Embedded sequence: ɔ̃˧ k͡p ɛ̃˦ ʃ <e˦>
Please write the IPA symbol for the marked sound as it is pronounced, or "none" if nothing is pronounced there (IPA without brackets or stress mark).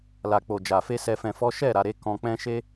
e˦